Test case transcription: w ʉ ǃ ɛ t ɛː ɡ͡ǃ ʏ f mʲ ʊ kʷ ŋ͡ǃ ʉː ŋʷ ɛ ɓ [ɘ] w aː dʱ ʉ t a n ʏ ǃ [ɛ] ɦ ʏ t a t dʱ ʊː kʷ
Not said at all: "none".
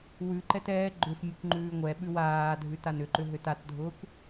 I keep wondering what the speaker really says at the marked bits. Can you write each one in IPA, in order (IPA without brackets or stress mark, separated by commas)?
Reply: ʉ, ʏ